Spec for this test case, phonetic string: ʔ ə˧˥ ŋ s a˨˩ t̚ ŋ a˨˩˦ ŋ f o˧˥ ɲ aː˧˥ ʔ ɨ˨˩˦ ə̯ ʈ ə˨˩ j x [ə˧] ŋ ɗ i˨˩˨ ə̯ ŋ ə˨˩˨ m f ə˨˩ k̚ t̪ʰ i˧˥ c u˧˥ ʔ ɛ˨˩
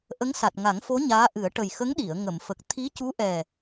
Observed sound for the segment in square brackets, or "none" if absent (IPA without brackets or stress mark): ə˧˥